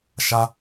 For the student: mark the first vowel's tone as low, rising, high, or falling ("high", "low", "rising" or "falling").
high